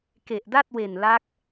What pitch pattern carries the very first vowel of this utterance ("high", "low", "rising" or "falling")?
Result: low